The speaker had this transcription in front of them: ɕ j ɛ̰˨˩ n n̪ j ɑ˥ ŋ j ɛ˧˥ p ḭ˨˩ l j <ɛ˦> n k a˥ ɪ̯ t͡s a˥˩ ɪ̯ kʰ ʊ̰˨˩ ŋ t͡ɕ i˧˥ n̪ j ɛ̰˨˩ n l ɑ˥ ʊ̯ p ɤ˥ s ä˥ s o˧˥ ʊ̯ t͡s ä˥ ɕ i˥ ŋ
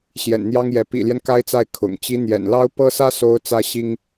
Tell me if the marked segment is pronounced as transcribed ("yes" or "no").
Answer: yes